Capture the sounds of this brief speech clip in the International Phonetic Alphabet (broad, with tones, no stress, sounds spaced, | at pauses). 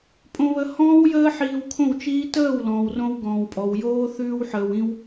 pʼ õ˧ β ə˧ h ɔ̃ː˦ w j əː˦ ħ iː˧ w kʰ õ˦˨ w t͡ʃ iː˦ t əː˦˨ w l ɔ̃ː˨ w r õ˧ w ɡ ɔ̃ː˨ w pʼ ɔ˨ w j oː˦ θ ʉː˧ w ħ əː˨ w ĩ˧ w